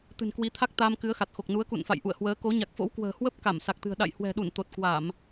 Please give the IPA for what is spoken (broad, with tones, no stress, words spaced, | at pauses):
t̪ɨ̤˨˩nkwi˨˦t̪ʰa˦˥k̚ t̪aː˧mkɨ˨˦ə̯xa˨˩t̚xo˨˩k̚ nu˨˦ə̯kṵ˧˨nfa̰˧˨j ʔṵ˧˨ə̯hwəː˨˦ko˨˦ ɲa˨˩k̚fo̰˧˥wkwə̤ː˨˩hwə˦˥p̚ ka˧˩msa˨˩k̚t̪ɨ̤˨˩ə̯ ɗa̰˧˨jhwɛ̤˨˩ɗu˧˩n t̪o˨˩t̚kwa˧˩˨m